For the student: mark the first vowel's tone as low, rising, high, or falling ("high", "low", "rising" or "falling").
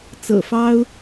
low